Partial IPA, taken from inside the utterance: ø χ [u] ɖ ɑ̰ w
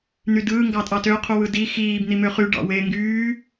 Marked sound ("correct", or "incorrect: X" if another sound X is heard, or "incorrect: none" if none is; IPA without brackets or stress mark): incorrect: y